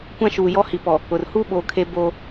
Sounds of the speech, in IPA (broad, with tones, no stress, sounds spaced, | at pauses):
kʷ ã˦ ʃ uː˨ j ɔ˦ h i˨ p ɔ˨ | ʊ˨ r h uː˦ ɓ oː˨ kʰ e˦ b oː˦